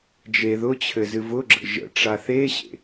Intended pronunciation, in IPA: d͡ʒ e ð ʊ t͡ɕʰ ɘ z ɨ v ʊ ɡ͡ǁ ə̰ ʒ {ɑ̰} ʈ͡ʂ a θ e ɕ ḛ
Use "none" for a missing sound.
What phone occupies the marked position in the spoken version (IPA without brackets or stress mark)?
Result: ə̰